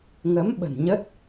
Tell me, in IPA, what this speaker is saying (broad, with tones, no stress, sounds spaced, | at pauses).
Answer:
ŋ ə˨˦ m ɓ ə̤˨˩ n ɲ ə˦˥ t̚